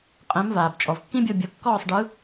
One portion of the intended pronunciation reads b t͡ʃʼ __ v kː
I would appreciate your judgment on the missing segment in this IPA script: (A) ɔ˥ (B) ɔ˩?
B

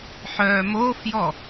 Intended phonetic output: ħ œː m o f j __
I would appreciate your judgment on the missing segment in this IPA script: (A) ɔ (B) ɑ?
A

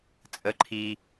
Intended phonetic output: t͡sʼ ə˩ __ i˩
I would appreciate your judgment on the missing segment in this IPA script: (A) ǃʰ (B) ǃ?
A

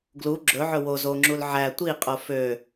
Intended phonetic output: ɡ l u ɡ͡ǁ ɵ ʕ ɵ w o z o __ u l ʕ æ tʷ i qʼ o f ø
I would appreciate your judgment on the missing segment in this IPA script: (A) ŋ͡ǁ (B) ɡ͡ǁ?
A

